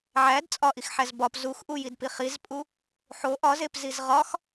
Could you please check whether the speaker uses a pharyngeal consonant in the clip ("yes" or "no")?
yes